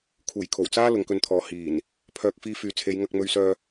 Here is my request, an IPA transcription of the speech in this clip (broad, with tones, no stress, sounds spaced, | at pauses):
kʰ uː˨˩ j kʰ o˨˩ w t͡s aː˥ l ʊ˨˧ ŋ k ɵ˧ n t̪ʰ ɔː˨ h iː˨˩ n | pʰ œː˨ k̚ f iː˧ f yː˨ t͡sʰ e˨˧ j ŋ ɐ˧ k̚ m ɵ˧ ɥ s œː˧